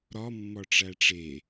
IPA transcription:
ɾɒmːɒ ʈ͡ʂæʈ͡ʂe

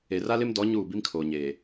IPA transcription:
e˨ra˦lɪ˦m dɔ˨˦ ɲuː˦˨bi˦mkʰoː˨ɲeː˨

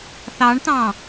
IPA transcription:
θɑɳt̪ɑ̃

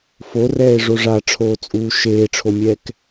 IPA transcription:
forɛːe̯ʐo ʐaʈ͡ʂʰoːt͡sʼuː ʃeːʈ͡ʂʰomʲɛːk

